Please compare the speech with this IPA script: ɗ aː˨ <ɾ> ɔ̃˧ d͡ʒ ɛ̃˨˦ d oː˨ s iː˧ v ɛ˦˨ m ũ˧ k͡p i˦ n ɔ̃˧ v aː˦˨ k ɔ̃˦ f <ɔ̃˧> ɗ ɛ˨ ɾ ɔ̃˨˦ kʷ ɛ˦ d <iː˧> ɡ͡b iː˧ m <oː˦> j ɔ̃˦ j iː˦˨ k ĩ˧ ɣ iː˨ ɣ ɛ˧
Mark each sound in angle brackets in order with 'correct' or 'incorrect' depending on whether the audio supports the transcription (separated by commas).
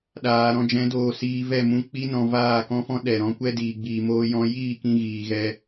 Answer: correct, incorrect, correct, correct